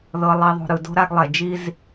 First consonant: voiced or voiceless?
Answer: voiced